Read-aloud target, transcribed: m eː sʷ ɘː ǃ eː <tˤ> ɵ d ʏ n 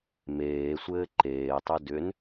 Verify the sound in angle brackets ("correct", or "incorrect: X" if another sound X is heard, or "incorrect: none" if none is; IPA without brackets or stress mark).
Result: correct